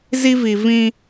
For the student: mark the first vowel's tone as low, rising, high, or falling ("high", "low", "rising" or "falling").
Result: high